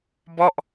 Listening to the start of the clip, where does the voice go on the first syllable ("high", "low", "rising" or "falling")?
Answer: falling